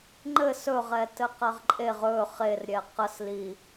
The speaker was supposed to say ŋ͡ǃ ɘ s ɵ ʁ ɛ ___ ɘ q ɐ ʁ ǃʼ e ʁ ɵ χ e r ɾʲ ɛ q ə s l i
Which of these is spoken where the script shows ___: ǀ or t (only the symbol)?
t